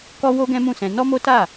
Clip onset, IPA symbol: k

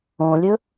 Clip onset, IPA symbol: õ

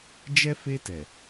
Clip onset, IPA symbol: d͡ʒ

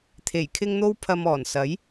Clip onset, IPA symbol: t̪ʰ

